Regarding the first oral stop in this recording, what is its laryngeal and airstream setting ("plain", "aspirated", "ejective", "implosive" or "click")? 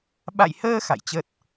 implosive